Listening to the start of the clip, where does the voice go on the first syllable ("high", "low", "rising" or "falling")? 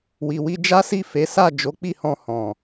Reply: low